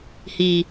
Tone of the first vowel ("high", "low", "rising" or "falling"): low